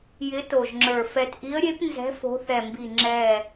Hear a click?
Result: yes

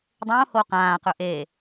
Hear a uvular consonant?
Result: yes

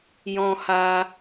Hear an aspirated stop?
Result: no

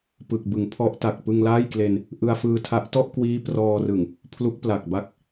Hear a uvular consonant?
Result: no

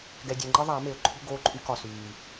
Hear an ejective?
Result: yes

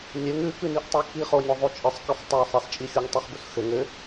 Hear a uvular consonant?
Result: yes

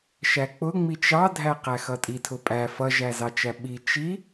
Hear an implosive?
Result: yes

